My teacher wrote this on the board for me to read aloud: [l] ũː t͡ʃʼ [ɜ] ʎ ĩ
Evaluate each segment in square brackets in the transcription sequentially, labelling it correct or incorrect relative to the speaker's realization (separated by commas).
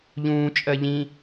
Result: incorrect, correct